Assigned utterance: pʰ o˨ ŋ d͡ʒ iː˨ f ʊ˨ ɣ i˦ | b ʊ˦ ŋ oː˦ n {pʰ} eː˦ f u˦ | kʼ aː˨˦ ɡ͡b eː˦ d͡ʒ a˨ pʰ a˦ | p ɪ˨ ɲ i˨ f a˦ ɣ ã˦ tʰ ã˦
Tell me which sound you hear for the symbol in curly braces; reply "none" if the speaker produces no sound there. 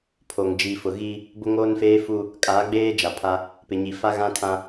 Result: f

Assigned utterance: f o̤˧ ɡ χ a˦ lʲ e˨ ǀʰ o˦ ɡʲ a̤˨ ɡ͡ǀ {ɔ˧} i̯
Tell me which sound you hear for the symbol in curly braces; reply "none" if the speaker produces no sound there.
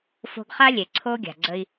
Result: ə˧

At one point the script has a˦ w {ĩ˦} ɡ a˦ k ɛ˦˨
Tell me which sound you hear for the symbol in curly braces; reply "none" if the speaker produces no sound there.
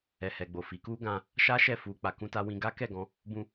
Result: ĩ˧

